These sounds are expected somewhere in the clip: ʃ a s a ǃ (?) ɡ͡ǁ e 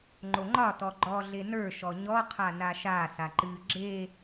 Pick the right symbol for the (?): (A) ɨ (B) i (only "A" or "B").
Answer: A